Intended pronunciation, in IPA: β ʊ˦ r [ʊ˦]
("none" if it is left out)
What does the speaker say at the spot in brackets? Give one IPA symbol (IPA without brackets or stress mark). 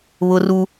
u˦